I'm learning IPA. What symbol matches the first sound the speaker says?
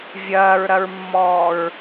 vʲ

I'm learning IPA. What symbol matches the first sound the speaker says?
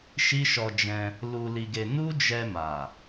ʃ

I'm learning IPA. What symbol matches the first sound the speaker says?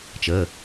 t͡ʃ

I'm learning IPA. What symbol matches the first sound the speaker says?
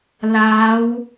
l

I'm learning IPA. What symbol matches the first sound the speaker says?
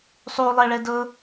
sˤ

